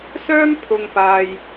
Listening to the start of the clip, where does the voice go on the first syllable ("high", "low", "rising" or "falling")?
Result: high